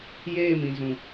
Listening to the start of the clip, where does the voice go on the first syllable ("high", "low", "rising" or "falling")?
falling